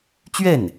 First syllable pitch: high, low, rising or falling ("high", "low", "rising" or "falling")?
falling